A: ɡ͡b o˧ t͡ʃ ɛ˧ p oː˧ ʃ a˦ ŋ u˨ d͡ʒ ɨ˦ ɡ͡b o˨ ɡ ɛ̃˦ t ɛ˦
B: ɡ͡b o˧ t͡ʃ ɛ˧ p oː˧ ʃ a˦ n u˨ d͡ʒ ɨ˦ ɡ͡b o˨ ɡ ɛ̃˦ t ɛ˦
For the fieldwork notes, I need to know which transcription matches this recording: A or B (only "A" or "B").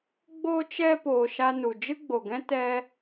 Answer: B